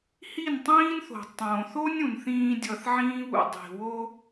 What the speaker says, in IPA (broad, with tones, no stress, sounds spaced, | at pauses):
h i˦˨ n tˤ ĩː˦ n θ o̤˨ tˤ õː˨ θ o˦ nʲ ũ˨ n θ ĩː˧ dʲ ʌ˧ θ ʕ ĩː˦ β ṵ˧ dˤ i̤˨ w o˦